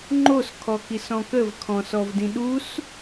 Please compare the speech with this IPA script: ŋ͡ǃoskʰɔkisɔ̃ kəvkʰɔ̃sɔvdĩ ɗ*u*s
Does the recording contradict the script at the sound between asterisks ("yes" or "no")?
no